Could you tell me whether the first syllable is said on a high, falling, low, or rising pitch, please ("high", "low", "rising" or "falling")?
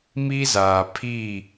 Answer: high